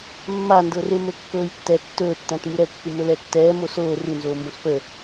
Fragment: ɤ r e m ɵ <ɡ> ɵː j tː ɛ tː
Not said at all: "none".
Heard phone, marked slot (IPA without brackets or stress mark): kː